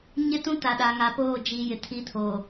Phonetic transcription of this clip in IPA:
ɲ ɪ˦ t ũ˦ t a˨ ɗ a˨ ŋ a˨ p oː˦˨ d͡ʒ i˨ j ɪ˨ tʰ i˦ tʰ oː˨

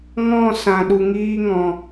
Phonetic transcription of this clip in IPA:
ŋ ɔ̃˦˨ s ã˨ ɗ u˧ ŋ iː˦ ŋ ɔ̃˧

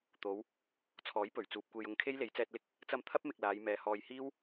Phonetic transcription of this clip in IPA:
t̪ o˨˧ w | t͡sʰ ɔː˨˥ j p ɵ˨˩ ɥ t͡s uː˨ p̚ kʷ e˧ j ʊ˧ ŋ kʰ e˥ j l e˨˥ j t͡s ɛː˧ t̚ l ɪ˥ k̚ | t͡s ɐ˧ m t̪ʰ ɐ˥ p̚ m ɪ˧ k̚ l aː˨˧ j m ɛː˨˧ h ɔː˨ j h iː˥ w

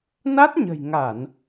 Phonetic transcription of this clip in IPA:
n a˦˥ t̚ ɲ ə̤˨˩ j ŋ a˧˩˨ n

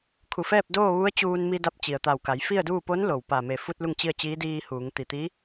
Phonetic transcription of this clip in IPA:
kʰ u˧˩ f ɛː˥˨ p̚ d oː˥˨ ʋ u˧˥ ə̯ t͡ɕ uː˧ n m i˧ d a˧˥ p̚ t͡ɕ i˩ ə̯ t̪ a˧˩ w k a˩˧ j f i˥˨ ə̯ d uː˥˨ p o˧˥ n l o˩ w p a˧˩ m e˧˩ f u˧ t̚ l u˥˨ ŋ t͡ɕ i˥˨ ə̯ t͡ɕ iː˧˥ d iː˧ h uː˩˧ ŋ t̪ i˩ t̪ i˧˥

